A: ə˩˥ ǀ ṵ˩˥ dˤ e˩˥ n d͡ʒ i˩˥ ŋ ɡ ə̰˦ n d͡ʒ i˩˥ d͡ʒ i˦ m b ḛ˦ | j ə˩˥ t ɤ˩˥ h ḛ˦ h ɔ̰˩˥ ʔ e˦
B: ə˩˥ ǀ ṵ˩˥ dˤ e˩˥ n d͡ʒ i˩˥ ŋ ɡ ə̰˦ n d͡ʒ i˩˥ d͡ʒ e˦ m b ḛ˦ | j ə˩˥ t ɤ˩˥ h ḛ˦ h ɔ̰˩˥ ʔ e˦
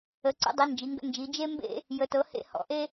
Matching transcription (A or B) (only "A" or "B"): B